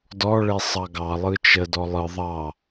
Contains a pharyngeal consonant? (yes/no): no